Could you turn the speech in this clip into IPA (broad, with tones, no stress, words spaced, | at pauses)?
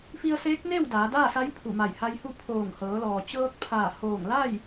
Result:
fi˧ə̯seː˧˥k̚neː˥˨w daː˩˧daː˥˨sa˧˥j pʰu˧˩ma˧˩jha˧jhu˥˨ pʰoː˧˩ŋ hɤː˩˧lɔː˩ t͡ɕɤː˧k̚pʰaː˧˩hoː˧˩ŋla˥˨j